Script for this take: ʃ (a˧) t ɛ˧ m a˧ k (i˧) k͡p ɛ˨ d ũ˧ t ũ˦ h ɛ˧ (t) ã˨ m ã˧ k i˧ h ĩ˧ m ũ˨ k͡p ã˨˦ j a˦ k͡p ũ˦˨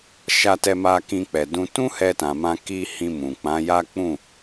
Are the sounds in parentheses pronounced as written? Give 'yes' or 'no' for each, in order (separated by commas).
yes, no, yes